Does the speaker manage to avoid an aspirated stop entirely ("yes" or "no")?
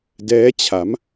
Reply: no